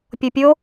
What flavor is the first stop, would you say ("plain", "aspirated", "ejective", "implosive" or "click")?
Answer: plain